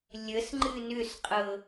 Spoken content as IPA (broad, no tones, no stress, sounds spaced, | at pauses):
lʲ ə s ŋ͡ǃ ɨ n ʏ s qʼ ɤ